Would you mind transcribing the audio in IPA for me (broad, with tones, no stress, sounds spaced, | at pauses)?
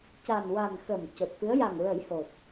c a˨˩ n w a˨˩ n x ə˨˩ m c o˨˩ t̚ f ɨ˧˥ ə̯ j a˨˩ ŋ ɹ ə˨˩˦ j h o˨˩ t̚